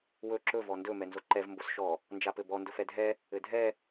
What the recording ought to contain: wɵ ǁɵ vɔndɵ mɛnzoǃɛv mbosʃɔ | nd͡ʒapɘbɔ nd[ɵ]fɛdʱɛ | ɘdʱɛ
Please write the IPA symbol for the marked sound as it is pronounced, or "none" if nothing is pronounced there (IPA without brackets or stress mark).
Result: ɵ